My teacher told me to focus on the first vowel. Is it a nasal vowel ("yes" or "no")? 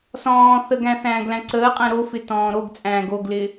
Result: yes